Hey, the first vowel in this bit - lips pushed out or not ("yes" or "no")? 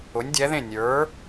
yes